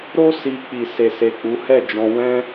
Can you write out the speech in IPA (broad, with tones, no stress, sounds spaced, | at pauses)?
ɾ o˦ s i˧ k͡p i˨ s e˨ s e˨ k͡p u˨˦ h ɛ˦˨ d͡ʒ ɔ̃˧ w ɛ̃˦